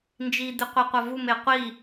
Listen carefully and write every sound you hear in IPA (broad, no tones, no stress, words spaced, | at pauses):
nd͡ʒid̪ɨ qʷiqʷɐvum eqʷi